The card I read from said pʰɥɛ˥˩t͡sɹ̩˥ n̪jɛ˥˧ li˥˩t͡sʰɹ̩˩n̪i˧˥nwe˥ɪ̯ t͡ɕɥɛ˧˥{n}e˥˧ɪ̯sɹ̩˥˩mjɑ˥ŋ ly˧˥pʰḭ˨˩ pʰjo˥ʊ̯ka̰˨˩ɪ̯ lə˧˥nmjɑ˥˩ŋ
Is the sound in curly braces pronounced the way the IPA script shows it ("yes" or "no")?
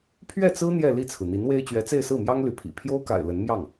no